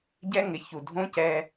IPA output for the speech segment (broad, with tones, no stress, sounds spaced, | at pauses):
ɟ ɛ˦ ŋ ɪ˨˦ ç u˨ dʱ õ˦ c ɛː˦